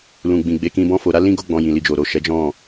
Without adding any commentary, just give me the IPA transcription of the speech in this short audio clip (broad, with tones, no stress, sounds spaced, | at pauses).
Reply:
l ũ˨ ɡ͡b ĩ˨ ɡ͡b e˨˦ k ĩ˧ b ɔ̃˦ f o˧ ɾ a˦ l ĩ˦ ɡ o˦ ɡ͡b ɔ̃˧ j ĩ˨ l i˨ d͡ʒ o˨ ɾ o˨ ʃ ɛ˨˦ d͡ʒ ɔ̃˦˨